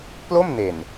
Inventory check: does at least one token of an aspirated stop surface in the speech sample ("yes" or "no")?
no